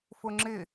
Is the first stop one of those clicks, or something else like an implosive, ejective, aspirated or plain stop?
click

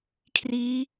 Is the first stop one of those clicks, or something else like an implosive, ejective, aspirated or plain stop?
aspirated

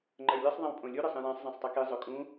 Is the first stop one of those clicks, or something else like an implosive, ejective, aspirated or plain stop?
click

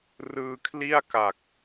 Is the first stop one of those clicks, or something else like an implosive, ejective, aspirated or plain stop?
aspirated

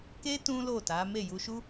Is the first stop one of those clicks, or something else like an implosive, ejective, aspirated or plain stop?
plain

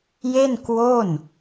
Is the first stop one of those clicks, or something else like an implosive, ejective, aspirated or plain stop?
plain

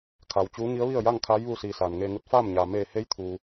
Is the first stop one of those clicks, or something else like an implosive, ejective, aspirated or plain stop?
aspirated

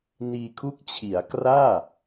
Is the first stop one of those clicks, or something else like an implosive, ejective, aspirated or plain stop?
aspirated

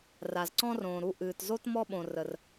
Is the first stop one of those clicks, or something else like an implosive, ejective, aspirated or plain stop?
click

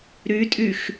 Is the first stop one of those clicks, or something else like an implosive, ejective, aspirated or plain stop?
ejective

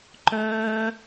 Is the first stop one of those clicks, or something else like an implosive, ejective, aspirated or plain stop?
click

